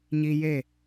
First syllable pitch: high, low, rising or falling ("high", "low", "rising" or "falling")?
high